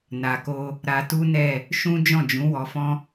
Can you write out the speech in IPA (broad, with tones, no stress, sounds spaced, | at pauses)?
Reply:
n a˨ k o˧ | ɾ a˧ t u˦ n ɛ˦˨ | ʃ ũ˦ d͡ʒ ɔ̃˦˨ d͡ʒ ũ˨˦ w ɔ˧ f ɔ̃˦